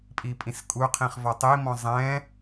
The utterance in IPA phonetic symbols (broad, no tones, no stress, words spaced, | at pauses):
pʼipʼĩskʼuqʰĩχ vɔtˤimɔ̃ zˤɛ̃